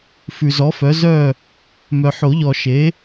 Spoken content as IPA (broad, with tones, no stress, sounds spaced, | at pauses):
f ʉ˨ z ɔ˨˥ f œ˨˥ z œ˥˨ | m œ˨ ħ o˨˩˦ ʎ ɔ˨ ʃ e˨˥